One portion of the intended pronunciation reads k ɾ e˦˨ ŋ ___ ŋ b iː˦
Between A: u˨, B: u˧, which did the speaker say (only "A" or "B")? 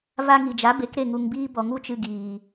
A